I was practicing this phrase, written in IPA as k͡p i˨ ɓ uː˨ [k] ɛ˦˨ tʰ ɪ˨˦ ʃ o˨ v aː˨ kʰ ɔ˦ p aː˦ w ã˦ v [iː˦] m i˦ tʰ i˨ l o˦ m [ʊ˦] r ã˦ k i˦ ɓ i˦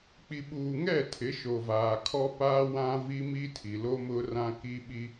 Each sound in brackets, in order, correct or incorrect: incorrect, incorrect, correct

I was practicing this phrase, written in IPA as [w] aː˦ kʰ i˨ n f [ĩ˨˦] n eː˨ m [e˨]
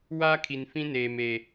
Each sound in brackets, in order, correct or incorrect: correct, incorrect, correct

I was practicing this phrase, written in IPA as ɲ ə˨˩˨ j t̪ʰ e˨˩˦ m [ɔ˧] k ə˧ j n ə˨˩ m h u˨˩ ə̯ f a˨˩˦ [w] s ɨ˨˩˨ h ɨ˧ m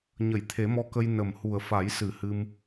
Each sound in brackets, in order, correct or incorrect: correct, incorrect

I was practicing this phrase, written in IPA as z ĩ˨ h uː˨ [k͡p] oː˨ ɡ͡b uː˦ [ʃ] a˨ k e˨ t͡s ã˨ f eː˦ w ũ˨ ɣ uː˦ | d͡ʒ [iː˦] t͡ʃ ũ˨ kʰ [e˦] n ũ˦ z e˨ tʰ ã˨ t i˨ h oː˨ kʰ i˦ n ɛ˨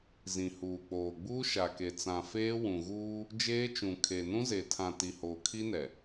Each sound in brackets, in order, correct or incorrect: correct, correct, incorrect, incorrect

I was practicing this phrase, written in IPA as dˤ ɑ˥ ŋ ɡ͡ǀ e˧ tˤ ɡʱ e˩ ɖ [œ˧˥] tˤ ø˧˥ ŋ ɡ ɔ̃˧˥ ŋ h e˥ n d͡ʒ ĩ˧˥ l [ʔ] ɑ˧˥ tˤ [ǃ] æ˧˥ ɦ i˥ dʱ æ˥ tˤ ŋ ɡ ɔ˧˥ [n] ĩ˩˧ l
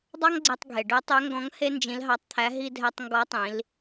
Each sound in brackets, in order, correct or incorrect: correct, incorrect, incorrect, incorrect

